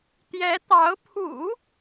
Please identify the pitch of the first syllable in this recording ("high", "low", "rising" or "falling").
rising